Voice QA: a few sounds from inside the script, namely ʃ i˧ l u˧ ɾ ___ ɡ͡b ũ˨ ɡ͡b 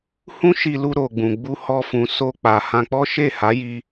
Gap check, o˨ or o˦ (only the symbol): o˨